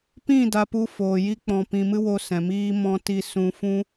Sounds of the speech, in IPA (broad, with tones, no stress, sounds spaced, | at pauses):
p ĩ˦˨ d a˧ p u˧ f oː˨ j i˧ k͡p ɔ̃˨ p ĩ˨ m ɨ˧ w o˧ s ɛ̃˨ m iː˧ m ɔ̃˧ t i˧ s ũ˧ f ũ˦